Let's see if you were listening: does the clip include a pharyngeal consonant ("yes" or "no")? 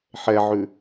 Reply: yes